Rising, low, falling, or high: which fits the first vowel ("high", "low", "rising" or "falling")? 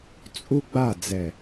high